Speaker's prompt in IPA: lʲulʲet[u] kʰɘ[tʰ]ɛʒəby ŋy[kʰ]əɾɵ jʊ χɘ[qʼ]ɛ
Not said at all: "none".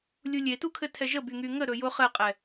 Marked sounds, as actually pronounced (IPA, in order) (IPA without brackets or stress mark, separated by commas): u, tʰ, ŋ, qʼ